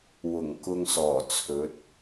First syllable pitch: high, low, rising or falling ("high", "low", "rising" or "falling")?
low